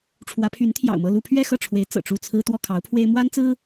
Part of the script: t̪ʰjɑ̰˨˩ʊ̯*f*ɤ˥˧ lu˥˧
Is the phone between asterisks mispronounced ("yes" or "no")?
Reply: yes